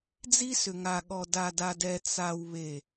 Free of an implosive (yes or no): no